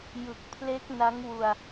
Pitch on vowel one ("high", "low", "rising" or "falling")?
low